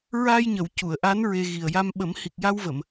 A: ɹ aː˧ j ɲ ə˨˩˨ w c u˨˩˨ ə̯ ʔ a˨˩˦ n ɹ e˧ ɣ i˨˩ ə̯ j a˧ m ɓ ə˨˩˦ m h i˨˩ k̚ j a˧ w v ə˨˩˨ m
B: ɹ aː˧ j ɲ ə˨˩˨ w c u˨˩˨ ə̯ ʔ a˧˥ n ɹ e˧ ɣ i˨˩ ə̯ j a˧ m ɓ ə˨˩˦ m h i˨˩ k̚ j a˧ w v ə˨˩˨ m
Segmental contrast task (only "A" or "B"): B